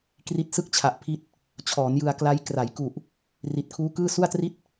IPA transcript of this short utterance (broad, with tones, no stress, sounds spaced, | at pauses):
k r i˦˥ t̚ s ɯ˥˩ k̚ t͡ɕʰ a˨˩ ʔ pʰ i˦˥ t̚ | t͡ɕʰ ɔː˩˦ n j ɯ˧ a̯ k l a˦˥ j k r a˩˦ j k u˨˩ ʔ | r i˨˩ t̚ kʰ uː˦˥ k ɯː˥˩ s u˥˩ a̯ t r i˥˩ t̚